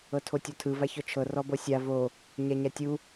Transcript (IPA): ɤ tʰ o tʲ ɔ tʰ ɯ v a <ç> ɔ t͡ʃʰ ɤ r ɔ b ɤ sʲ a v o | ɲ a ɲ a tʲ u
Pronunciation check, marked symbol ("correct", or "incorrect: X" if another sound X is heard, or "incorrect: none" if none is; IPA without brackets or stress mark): correct